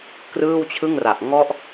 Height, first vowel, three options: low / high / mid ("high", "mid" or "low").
high